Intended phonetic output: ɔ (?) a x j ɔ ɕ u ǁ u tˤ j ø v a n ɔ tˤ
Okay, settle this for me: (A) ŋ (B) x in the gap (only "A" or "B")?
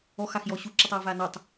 B